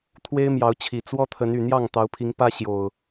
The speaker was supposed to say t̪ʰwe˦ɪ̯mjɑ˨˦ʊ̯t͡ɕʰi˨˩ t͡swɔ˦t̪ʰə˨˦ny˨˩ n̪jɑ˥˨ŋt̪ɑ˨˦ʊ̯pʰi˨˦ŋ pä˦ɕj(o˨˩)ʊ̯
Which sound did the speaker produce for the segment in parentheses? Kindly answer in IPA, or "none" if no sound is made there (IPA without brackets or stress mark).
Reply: o˨˩